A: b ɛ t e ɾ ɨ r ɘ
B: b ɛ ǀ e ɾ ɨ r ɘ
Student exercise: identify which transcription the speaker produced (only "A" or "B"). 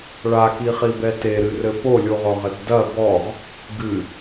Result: A